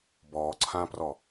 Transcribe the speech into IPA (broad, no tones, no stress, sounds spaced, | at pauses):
b ɔː ǀʰ ãː p r ɔ